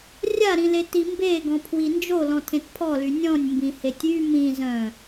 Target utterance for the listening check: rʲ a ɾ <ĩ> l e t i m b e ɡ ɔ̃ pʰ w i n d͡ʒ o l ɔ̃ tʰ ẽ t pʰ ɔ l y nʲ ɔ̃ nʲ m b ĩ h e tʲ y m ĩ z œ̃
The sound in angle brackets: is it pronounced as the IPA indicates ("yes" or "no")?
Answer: yes